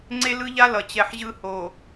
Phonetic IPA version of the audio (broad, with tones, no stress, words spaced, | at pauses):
ŋ͡ǀe˦lɯ˦ʎa˦ lʌ˨t͡ɕɛ˨ħ ʑɯ˦ho˨